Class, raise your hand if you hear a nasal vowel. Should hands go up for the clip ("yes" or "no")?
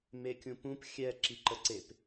yes